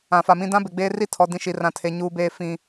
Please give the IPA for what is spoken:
ã˨fa˨mĩ˦ dã˦be˨ɡ͡beː˦ ri˦tʰɔ˨ dĩ˦ʃi˨˦ rã˦tʰe˦ ɲuː˦beː˦ fĩ˦

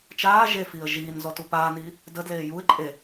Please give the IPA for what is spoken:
t͡ʃaː ʒefiːə̯ ʒiːn zɔtupaːniː | dədleː juɪ̯ ǃʼe

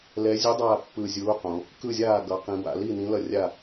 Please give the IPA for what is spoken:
lɛ˨˥ zʲu˨˥ dˤaː˥˩pːɯː˧˩zʲuː˨˥qõ˩˧ | kɯ˥˩zʲaː˥˩ ɡʌ˩˧qĩ˩˧ ba̰˩˧li˥˩nĩ˨˥ lʌ˥˩rʲa˥˩

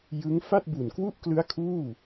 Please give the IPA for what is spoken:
jɯ˦˥ŋ fa˥˩t̚bu˨˩nkwu˥˩ʔklɯ˦˥a̯ kʰuː˥˩

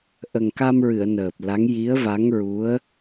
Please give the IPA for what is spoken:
ʔə˨˩ŋka˧mɹɨ˨˩˨ə̯ nəː˨˩p̚la˧˥ŋ ji˧˥ə̯va˧˥ŋɹu˧˥ə̯

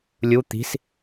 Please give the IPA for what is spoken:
lʲu t̪i̤s

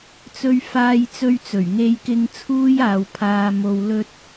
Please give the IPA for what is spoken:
t͡sɵ˧ɥfaː˧jt͡sɵ˧ɥt͡sɵ˨˩ɥ ŋe˧jkɪ˧ŋ t͡sʰuː˥jaː˨wpʰaː˧ mo˨wlɵ˧t̚

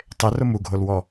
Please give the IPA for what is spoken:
tˤerʊ muɡʱolwɔ

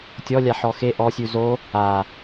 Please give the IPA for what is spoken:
tʲɔlʲa ħɔxe ʔɔsʲʉ zo | a

